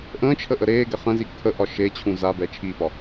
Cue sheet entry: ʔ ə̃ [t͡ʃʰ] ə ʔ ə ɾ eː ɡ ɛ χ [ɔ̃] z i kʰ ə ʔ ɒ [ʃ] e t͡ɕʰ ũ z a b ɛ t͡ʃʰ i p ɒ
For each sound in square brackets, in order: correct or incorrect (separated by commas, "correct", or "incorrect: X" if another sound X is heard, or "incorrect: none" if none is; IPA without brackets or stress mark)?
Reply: correct, incorrect: ə̃, correct